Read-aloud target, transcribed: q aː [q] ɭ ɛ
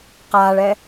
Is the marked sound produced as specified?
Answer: no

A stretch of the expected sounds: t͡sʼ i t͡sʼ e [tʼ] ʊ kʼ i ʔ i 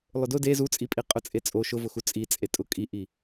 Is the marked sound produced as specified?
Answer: yes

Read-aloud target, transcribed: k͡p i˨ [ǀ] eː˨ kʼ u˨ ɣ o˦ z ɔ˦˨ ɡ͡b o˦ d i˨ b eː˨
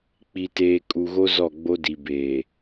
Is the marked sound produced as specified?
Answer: no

